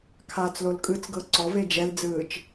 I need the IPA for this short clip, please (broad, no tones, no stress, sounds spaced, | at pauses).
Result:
kʰ aː t͡s l o l kʼ ɯ t͡s ɡ ɤ ǀ ɔ v e d͡ʒ ɛ l d͡z ɯː t͡ʃ